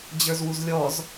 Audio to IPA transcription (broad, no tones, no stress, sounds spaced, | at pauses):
d͡ʑ ə˞ z w u z lʲ ɔ z